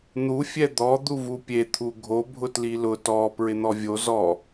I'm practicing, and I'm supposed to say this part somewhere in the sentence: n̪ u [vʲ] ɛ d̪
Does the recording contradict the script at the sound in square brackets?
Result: yes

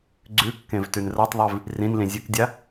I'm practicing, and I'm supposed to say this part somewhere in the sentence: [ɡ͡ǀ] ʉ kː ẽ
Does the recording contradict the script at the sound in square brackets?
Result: no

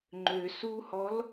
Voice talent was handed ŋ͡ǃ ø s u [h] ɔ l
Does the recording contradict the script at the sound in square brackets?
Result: no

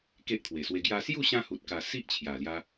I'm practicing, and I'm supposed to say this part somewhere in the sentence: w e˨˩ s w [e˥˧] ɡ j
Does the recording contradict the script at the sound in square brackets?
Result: yes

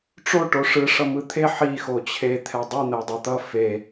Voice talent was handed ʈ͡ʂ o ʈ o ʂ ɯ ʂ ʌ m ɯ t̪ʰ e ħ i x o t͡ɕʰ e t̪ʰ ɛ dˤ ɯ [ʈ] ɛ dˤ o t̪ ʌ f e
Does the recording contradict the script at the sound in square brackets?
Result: yes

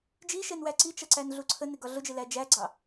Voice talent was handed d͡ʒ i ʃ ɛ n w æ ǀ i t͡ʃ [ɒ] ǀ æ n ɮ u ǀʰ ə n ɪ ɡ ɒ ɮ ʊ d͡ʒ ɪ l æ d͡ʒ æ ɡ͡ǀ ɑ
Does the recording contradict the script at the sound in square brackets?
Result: yes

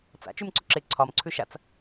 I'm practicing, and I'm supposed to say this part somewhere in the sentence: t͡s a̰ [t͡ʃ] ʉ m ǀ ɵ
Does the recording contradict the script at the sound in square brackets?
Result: no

